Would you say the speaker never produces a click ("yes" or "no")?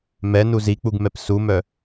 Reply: yes